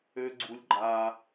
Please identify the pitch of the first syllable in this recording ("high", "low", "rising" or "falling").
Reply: high